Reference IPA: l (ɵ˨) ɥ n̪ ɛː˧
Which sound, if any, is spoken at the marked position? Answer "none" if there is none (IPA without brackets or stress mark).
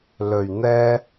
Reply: ɵ˨